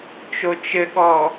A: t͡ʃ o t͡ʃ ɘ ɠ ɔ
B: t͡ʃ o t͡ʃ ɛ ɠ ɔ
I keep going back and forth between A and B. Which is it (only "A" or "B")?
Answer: A